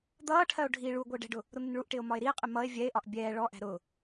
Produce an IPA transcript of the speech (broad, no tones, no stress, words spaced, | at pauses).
d̪ʌːʈʰɜo̯ ɖʱi ɭu ɡʷɛe̯ɖɛ̤ɖʊ | ɾʊn̪ɪnɭuʔʈɪːo̯ mɒe̯ɾie̯qʼɪ mʌe̯ vʲɛe̯ʔɒʔ bʲɛː ɭɔʔæ̤ ɾʊ